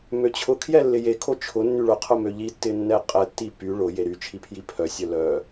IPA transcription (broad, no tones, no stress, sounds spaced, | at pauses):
m ø t͡ɕʰ ʊ kʰ j ɛ lː ɪ j e kʰ o t͡ʃʰ ʊ nː y ɭ ʊ qʰ ʊ m ø ʎ i tː ɪ nː ɛ qʼ ɛ tː i p y ɭ ʊ j e ɾ y t͡ʃʰ i pʰ j i pʰ œ sʲ œ l œ